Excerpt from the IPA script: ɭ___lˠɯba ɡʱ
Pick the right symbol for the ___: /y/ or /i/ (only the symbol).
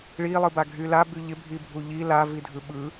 i